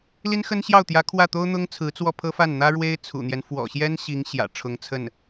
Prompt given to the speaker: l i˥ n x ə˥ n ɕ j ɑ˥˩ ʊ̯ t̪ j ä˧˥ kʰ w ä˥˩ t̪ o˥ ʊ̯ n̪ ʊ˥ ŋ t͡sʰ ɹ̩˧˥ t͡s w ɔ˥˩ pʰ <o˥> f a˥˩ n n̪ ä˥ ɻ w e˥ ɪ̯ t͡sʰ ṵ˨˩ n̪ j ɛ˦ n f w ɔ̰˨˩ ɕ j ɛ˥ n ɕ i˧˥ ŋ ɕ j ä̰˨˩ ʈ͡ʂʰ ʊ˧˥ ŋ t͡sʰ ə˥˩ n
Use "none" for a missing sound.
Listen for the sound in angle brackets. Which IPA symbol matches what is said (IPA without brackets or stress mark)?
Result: ɤ˥